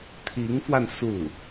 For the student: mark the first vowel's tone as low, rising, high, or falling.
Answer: rising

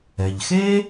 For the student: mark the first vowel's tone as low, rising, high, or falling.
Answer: low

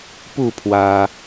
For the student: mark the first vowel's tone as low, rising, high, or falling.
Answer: falling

